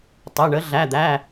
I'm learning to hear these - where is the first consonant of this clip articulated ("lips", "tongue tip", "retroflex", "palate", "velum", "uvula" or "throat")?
tongue tip